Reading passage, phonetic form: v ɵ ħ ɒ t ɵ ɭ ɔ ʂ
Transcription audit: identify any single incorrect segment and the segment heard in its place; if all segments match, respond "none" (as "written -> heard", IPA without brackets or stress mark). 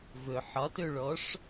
none